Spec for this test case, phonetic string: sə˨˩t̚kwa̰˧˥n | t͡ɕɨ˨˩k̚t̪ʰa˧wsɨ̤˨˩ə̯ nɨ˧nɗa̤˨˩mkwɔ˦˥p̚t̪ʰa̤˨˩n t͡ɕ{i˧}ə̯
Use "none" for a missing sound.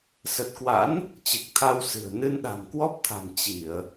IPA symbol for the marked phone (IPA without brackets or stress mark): i˧˩˨